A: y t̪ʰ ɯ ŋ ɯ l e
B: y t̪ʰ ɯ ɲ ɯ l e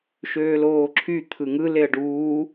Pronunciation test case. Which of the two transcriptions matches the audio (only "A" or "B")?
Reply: A